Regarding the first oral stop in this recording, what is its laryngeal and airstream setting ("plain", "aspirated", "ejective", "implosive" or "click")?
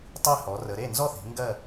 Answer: plain